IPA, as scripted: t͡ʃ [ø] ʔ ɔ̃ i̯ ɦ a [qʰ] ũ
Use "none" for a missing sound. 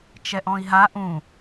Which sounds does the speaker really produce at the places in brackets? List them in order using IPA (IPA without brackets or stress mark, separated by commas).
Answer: ɛ, ʔ